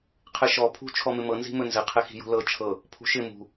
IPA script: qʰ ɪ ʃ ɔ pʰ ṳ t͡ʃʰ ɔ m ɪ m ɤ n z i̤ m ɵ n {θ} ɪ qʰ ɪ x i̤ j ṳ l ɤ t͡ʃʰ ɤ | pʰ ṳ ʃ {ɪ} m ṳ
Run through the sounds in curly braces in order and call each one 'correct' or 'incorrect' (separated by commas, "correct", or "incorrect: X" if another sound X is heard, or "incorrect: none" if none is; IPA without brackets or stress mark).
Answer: incorrect: z, correct